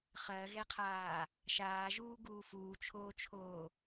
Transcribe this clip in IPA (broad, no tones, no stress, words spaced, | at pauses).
χɜɣɛqʰaː | ʃaːʒuːɡuː fuːt͡ʃʰoːt͡ʃʰoː